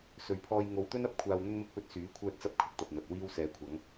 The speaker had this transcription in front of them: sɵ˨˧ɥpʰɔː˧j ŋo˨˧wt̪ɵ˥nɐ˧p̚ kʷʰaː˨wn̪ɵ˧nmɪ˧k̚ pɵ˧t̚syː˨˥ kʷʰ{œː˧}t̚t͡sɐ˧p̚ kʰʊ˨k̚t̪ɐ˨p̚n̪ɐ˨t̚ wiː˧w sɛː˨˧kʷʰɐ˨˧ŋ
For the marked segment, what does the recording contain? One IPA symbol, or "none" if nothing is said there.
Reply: œː˧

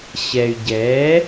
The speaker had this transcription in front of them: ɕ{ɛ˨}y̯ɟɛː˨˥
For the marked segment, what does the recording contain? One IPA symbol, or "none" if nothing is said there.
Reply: ɛ˨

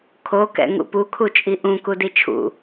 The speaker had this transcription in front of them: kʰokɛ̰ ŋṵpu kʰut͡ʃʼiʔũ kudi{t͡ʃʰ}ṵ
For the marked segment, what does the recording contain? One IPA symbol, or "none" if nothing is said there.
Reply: t͡ʃʰ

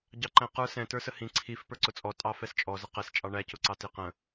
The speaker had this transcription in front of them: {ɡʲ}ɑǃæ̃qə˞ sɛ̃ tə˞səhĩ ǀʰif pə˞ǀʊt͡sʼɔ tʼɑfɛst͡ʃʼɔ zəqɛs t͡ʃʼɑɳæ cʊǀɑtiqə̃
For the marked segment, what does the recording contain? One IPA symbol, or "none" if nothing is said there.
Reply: ɟ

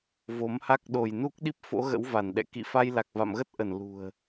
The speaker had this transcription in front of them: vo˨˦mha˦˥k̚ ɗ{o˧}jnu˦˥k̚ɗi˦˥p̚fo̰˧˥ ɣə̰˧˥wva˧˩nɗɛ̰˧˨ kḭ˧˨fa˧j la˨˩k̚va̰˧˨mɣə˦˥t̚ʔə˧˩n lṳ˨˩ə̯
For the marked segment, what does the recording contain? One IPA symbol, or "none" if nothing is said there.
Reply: o˧˩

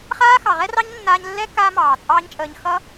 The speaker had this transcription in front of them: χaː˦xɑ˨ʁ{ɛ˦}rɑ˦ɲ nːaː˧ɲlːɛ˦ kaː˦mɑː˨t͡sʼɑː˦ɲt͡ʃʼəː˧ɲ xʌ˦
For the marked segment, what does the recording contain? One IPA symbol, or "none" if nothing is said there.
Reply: ɛ˦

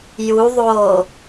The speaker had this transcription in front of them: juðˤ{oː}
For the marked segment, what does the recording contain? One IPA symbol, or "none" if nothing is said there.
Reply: oː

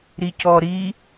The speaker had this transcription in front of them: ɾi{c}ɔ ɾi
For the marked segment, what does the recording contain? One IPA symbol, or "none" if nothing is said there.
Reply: c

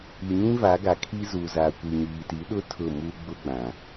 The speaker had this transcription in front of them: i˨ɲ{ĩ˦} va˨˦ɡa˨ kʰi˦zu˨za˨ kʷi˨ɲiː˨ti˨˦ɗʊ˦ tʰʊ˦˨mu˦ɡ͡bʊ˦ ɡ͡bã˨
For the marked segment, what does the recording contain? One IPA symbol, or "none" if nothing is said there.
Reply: ĩ˦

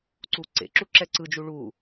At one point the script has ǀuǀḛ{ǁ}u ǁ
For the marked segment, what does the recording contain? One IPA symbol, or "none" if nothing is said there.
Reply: ǁ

